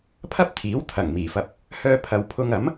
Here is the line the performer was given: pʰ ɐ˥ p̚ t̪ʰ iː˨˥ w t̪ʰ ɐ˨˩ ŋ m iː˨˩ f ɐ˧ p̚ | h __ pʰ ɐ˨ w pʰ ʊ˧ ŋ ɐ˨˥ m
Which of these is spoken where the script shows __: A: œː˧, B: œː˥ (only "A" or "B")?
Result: A